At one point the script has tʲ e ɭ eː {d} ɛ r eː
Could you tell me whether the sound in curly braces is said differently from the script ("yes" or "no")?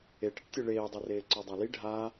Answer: yes